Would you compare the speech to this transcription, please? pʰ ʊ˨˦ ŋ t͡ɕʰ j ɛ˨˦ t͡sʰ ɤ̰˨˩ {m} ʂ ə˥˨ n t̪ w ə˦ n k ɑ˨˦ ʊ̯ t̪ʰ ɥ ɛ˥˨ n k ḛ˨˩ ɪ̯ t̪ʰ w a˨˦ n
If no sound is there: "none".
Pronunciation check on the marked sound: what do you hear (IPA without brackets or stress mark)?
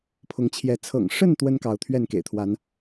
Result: ŋ